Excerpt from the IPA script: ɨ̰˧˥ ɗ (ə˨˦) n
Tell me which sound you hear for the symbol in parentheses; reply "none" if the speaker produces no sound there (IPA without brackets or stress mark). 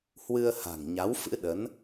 ə˨˦